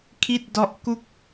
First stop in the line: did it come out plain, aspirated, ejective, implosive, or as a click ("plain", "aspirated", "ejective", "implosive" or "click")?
aspirated